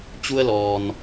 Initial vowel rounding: rounded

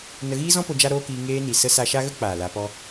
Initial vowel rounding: unrounded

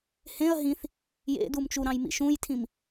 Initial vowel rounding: unrounded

